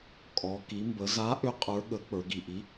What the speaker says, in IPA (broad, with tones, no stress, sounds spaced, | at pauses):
kʼ ɔ˩˧ k i˩˧ m b ə˩˧ z a˨˥ ʔ ʏ˨˥ qʼ ə˞˨˥ ɠ ə˨˥ k͡p ə˞˩˧ ɡ i˩ ʔ i˨˥